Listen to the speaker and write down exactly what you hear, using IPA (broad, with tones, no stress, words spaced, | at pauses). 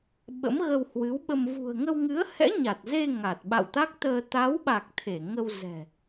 ɓə̰˧˥mɣə˧whwɨ˨˦wɓə˧m vṳ˨˩ə̯ŋə˧wŋɨ˨˦ə̯hɛ̰˧˥ ɲa˨˩t̚ze˧ ŋa˨˩t̚ɓa̰˧˨wt̪a˦˥k̚t̪əː˧ t̪a˨˦wɓa˨˩k̚ t̪ʰe˧˩ŋə˧w zɛ̤˨˩